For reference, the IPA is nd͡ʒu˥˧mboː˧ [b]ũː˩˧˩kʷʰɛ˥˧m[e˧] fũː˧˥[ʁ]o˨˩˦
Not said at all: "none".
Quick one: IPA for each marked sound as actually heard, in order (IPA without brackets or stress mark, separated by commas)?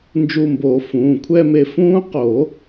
f, e˧, q